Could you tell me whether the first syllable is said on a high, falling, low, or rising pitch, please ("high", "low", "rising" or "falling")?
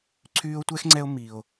high